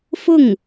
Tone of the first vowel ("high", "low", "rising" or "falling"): falling